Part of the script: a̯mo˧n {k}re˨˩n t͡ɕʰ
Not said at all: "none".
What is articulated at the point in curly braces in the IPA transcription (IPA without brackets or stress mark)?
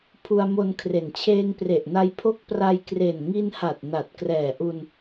kʰ